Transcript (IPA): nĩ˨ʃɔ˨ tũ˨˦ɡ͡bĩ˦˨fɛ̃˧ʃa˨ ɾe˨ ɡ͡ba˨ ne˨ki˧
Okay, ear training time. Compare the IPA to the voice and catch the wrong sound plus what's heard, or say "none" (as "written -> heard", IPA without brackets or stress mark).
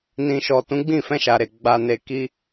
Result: none